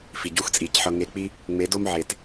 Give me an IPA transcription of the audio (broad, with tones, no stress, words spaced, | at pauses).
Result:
fi˨ɟu˦xt͡sʼi˨cħɤ˧ ŋe˧k͡pi˦ | ŋ͡me˨˦do˦m ʕe˨t